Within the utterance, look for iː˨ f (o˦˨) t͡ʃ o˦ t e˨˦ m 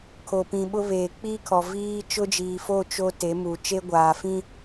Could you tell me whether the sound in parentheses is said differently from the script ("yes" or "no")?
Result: no